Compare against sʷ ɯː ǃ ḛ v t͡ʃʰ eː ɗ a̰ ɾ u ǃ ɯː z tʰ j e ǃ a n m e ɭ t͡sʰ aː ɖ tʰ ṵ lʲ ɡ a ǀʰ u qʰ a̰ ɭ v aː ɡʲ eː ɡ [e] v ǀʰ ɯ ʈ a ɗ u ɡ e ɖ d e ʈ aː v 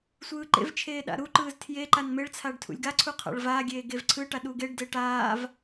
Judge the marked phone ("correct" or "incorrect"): correct